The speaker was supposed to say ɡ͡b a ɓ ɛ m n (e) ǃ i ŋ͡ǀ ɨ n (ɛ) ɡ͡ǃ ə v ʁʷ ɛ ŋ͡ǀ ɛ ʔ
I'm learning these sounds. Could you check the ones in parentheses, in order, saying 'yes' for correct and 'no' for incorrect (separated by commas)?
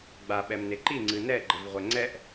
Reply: yes, yes